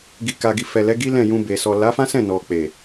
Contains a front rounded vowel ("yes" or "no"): no